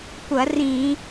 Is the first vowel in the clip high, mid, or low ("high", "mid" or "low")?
low